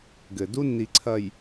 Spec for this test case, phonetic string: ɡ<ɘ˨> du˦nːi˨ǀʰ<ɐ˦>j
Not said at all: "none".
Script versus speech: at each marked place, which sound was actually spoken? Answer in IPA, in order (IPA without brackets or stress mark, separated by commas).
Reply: ɘ˨, ɐ˨